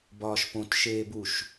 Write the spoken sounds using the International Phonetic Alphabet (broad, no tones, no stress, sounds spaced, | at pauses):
b ɒː ʃ p õ t ʃ eː b u ʃ